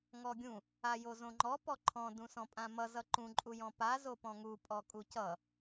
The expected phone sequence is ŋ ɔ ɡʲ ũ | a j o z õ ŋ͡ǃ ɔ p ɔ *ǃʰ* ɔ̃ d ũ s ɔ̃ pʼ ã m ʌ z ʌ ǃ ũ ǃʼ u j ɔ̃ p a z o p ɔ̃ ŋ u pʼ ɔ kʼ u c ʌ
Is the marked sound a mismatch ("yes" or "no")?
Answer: no